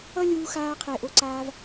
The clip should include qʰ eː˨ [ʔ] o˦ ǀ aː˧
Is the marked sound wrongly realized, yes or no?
no